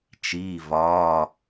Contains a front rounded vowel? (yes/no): no